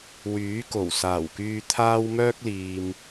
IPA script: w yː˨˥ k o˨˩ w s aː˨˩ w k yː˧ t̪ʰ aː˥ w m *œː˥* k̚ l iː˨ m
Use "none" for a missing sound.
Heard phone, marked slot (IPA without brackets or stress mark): œː˥